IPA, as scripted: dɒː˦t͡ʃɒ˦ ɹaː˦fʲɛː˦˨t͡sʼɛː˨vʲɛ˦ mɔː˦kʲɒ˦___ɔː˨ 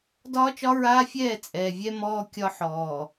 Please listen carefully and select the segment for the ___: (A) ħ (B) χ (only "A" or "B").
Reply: A